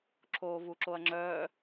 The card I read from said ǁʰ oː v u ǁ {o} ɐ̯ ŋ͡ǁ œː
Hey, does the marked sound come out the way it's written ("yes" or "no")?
yes